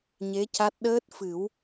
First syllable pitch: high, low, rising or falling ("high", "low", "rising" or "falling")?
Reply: rising